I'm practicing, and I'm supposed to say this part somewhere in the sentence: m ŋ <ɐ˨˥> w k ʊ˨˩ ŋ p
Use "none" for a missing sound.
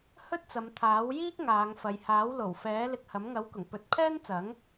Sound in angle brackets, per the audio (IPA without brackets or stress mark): ɐ˨˥